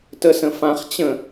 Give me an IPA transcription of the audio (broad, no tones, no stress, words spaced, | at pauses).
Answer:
təsə̃fãχ t͡ɕə̃